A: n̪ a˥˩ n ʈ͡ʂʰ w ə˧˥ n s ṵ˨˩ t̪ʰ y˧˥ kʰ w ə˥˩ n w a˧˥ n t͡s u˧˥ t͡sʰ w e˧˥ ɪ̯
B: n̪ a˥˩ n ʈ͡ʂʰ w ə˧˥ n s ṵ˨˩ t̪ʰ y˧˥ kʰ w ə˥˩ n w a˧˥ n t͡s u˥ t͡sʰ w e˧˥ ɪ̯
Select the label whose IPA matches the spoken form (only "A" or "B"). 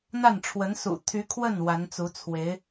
A